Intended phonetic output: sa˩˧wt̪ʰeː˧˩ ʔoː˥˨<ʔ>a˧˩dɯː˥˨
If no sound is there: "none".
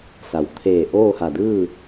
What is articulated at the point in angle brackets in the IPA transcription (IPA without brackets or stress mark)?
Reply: h